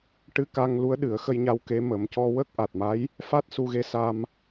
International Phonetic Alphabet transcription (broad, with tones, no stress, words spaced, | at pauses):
ʈɨ˧ka˧ŋ lu˧˥ə̯ɗɨ˨˩˦ə̯xə˧jɲa˧w ke˧˥ mə˨˩˦mcɔ˧ wə˦˥k̚ʔa˨˩t̚ma˧˥j | fa˦˥t̚su˧ɣe˧˥ sa˧m